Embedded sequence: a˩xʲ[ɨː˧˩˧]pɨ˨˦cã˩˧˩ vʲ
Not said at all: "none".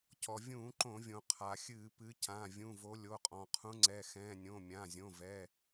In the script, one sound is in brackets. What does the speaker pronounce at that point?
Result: ɨː˧˩˧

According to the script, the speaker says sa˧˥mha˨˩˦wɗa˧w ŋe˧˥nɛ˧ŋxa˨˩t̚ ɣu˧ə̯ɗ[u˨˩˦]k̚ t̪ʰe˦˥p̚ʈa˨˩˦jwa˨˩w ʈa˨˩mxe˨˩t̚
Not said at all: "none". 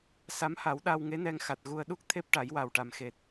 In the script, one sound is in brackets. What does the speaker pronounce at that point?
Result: u˦˥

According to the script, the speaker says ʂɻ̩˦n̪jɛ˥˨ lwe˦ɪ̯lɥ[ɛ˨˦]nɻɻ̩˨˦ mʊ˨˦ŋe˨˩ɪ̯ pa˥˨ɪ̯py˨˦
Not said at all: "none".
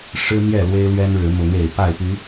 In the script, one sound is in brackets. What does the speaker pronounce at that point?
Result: ɛ˦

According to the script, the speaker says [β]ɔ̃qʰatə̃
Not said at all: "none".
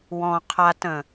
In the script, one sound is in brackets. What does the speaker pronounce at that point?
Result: w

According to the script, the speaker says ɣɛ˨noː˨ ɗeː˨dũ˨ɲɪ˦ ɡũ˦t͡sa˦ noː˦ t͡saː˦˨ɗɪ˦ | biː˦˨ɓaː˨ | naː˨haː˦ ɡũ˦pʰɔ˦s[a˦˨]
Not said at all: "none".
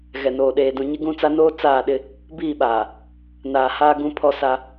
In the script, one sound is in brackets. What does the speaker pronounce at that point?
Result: a˦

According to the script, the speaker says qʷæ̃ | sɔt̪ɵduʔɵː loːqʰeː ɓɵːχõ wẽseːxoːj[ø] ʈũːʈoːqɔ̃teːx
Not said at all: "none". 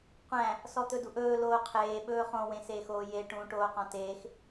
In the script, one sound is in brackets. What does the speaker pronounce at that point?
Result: e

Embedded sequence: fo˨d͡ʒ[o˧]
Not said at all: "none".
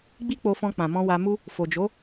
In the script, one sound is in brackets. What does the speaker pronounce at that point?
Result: o˨˦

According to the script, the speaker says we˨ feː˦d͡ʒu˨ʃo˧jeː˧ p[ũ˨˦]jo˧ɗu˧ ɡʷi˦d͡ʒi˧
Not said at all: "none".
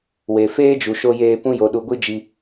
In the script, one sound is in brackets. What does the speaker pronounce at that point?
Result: ũ˦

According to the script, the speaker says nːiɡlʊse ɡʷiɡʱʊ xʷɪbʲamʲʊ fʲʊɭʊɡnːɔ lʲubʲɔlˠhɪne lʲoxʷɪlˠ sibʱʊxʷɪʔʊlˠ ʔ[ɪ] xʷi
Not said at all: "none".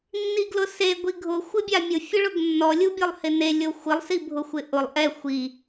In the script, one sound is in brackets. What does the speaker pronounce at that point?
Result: ɛ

